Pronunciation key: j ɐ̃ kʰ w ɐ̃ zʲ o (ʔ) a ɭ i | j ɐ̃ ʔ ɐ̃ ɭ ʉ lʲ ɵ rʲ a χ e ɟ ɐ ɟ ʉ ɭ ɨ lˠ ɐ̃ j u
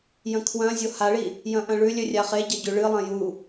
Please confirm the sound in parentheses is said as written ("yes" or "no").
no